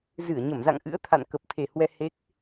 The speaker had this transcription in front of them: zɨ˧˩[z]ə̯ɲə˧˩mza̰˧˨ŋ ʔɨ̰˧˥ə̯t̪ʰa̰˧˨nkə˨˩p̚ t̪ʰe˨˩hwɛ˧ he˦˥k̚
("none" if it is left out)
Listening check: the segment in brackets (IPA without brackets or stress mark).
none